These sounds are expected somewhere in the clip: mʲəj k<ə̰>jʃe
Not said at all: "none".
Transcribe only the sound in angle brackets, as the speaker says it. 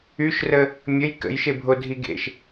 ə̰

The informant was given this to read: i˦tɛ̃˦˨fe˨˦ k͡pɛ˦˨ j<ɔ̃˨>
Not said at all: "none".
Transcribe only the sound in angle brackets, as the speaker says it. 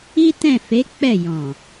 ɔ̃˨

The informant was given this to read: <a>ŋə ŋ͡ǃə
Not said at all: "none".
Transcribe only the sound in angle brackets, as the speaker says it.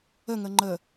ə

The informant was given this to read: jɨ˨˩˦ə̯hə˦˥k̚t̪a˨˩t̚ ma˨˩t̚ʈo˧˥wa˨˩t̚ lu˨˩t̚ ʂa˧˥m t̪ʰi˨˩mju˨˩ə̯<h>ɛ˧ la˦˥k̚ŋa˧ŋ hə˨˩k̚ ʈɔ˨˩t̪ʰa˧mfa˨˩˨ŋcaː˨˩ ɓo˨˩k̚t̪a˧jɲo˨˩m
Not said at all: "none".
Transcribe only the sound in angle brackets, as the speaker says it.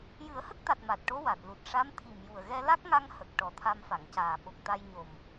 ɣ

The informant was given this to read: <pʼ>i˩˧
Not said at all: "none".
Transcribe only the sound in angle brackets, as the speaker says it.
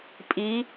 pʼ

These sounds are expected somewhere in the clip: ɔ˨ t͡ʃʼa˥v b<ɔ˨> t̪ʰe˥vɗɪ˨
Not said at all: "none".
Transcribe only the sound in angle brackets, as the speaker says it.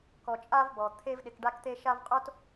ɔ˩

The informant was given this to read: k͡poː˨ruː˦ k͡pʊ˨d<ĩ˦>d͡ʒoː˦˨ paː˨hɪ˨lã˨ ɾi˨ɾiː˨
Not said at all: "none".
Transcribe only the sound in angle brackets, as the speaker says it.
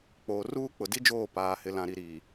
i˦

